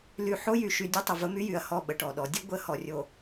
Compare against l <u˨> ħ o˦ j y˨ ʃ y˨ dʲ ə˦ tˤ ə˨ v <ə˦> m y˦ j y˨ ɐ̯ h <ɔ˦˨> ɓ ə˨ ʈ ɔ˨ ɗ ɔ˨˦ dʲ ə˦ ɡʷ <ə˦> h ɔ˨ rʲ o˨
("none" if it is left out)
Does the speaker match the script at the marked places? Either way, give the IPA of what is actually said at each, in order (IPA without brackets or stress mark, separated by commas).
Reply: y˨, ə˦, ɔ˦˨, ə˦